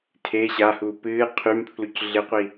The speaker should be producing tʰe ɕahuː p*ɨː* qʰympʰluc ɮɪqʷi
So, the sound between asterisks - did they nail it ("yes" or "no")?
yes